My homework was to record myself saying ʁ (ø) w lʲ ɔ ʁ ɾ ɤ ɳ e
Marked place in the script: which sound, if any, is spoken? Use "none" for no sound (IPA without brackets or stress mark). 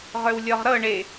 ø